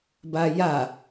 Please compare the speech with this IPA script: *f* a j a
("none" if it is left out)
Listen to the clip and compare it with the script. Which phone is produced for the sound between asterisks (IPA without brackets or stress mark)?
b